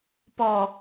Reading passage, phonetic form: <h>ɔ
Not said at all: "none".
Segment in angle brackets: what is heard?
p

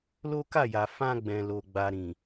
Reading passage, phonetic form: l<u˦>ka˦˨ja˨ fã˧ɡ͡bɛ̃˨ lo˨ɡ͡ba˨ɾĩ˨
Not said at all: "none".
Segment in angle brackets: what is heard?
o˦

